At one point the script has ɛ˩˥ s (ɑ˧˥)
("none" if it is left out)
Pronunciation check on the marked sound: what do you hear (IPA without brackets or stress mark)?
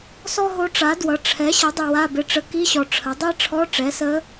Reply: ə˧˥